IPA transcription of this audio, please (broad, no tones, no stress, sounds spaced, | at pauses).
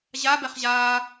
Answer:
ʑ a b ɛ χ ʑ aː